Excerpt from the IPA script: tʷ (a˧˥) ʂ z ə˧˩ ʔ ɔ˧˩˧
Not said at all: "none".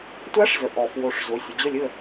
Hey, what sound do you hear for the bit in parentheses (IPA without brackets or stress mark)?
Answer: ɑ˧˥